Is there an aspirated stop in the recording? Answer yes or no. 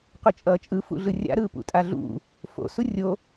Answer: no